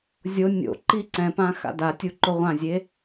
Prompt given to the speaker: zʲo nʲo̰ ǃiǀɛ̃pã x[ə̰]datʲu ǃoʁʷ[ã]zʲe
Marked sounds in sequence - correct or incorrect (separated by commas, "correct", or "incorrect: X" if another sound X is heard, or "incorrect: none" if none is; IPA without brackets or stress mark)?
incorrect: a̰, correct